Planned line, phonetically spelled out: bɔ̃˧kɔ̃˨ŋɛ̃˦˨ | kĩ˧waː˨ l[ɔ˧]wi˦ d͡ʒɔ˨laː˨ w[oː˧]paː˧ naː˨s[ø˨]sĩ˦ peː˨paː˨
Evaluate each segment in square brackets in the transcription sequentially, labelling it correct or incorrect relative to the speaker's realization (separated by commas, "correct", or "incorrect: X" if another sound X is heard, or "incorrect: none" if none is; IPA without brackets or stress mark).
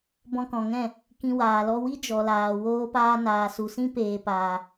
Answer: correct, correct, incorrect: u˨